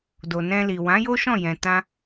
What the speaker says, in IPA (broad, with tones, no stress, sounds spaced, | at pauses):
d o˨ n ɛ̃˧ l i˨ w ã˨˦ j o˦ ʃ ɔ̃˦˨ j ɛ̃˨ t ã˧